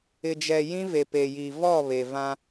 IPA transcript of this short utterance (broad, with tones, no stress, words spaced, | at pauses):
ɪ˨d͡ʒɛ˨ jĩ˦ve˨pe˨ji˨ vɔ˦˨ βe˨vã˦